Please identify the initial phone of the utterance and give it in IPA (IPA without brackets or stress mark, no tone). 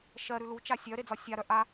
ʃ